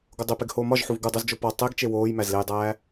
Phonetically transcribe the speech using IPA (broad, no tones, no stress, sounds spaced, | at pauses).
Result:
ɡ o dˤ e p e ɡ h oː m ɒ ʒ ħ u v ɡ u dˤ o z d͡ʒ o p ɒ tˤ e ɡ t͡ʃ e w oː j m æ z l e j dˤ æː